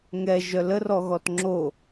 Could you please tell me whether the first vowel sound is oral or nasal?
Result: oral